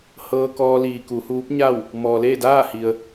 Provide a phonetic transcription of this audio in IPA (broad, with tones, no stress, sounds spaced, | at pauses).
h ɤː˧ k ɔː˧ l iː˩ k u˩˧ h uː˧˥ p̚ ɲ a˥˨ w | m ɔː˩ l eː˥˨ d aː˥˨ h i˩ ə̯